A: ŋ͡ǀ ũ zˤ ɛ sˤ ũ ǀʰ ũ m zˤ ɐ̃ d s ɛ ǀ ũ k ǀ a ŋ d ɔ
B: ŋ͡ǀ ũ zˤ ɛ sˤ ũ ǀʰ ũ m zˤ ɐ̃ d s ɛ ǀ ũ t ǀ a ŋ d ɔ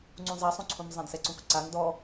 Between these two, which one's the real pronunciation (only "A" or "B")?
A